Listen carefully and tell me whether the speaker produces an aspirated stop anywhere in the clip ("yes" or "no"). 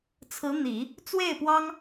yes